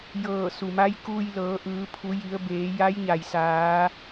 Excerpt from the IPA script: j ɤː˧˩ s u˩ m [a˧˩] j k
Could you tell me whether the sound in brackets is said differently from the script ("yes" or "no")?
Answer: yes